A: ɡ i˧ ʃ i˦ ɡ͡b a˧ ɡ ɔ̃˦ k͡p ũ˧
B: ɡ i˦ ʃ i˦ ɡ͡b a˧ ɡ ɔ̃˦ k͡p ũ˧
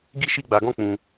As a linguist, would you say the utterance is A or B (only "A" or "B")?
B